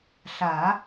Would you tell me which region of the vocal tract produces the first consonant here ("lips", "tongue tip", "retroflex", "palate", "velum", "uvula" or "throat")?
tongue tip